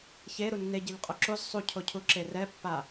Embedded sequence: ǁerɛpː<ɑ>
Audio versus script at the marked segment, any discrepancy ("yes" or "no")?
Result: yes